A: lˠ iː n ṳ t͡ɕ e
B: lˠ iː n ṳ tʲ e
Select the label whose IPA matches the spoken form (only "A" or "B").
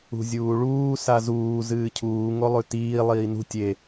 B